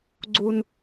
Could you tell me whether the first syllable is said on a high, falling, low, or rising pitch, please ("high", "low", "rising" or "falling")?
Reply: high